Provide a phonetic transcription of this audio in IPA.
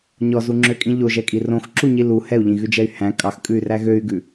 ɲ ɔ z u ŋ͡ǁ ø kʼ ĩ ʎ o ʒ ɛ kʼ i r õ x ǁ u ɲ i l u h ɛ u̯ ʎ ĩ ɣ ʉ d͡ʒ ɛ y̯ h æ̃ kʼ ɑ x kʼ ʉ y̯ r æ ɣ ø y̯ ɡ ʉ

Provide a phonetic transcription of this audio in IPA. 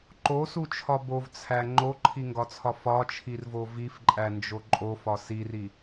ǃ o s u t͡ʃʰ ɒ b o v t͡sʰ æ ŋ͡ǃ o ǃʰ i ŋ ɡ ɒ t͡sʰ ɒ f ɒ t͡ʃʰ i r v o v i f ǃʼ æ n d͡ʒ o ǃʼ o f ɒ s i r i

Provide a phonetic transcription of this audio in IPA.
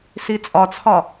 s i t͡sʼ ɒ t͡sʰ ɒ

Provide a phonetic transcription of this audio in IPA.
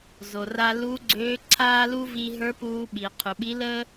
z o˩ r a˧ l u˧˥ ɡ͡ǀ øː˧˥ ǀʰ aː˥ l u˥ v i˧ ɦ ə˞˧˥ p uː˧ ɓ i˩ qʰ u˩ ɓ i˧˥ l əː˥

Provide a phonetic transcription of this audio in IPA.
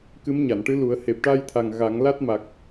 k ɨ˧˥ m ɲ a˨˩˨ n ʈ ɨ˧˥ l u˨˩˦ ə̯ h e˨˩ p̚ ʈ a˧ j t̪ʰ a˨˩ ŋ ɣ a˨˩˦ ŋ l a˦˥ t̚ m a˨˩ k̚

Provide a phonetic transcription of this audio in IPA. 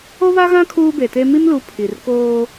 o˦ β a˦ ɣ ã˦ kʰ uː˦ b e˨ t e˦ m i˦ m l u˨˦ pʰ i˨ r k oː˦

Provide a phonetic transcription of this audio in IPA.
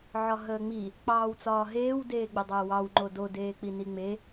ʕ ɒ ɦ əː ŋ͡m i | k͡p ɑː w t͡s ɒː ɦ eː w d eː ɡ͡b ɘ dˤ əː w ɑ w ŋ͡ǃ o d o d eː k͡p i n i ŋ͡m e

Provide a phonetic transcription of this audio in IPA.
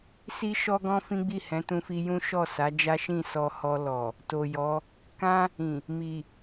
s i˦ ʃ ɔ˦ ɡ ɔ̃˦ f ĩ˦ ɡ͡b i˦˨ h ɛ̃˨˦ t ũ˧ f i˧ j ũ˦ ʃ ɔ˦˨ s a˨˦ d͡ʒ a˦ ʃ ĩ˦˨ s ɔ˧ h ɔ˧ l ɔ˨ | t o˨ j ɔ˨˦ | k ã˦ | ĩ˨ | m i˨

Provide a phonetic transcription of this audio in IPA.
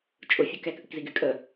t͡ʃʼ ʊ fʲ ʊ k ɛ k ʔ ɯ k z i ɡ y kʼ ə

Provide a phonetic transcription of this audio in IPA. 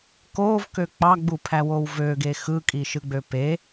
k o v k ø k͡p ɑ ɡ͡b u pʰ æ w o w v ø ɡ e x ɯ kʼ i ʃ ɯ ɡ͡b ø p e

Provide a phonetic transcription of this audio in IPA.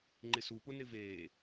ŋ͡ǃ ɪ s u p ʊ n ɪ v eː

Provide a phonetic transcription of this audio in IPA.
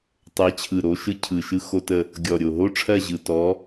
tˤ ɜ˨˦ t͡ɕʰ ɯ˨˩ ɾ o˨˦ ʃ ɯ˦ cʰ ɯ˨˩ ʃ ɯ˦ x o˦ t ə˦˨ | ɡʲ ɔ˨˩ ɾʲ o˨˩ ɦ o˦ ʈ͡ʂʰ ɜ˦˨ ʑ ɯ˨˩ t ɔ˨˦

